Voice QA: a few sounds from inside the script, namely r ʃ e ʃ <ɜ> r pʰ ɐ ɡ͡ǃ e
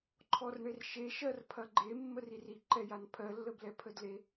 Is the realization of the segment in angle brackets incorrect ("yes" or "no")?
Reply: no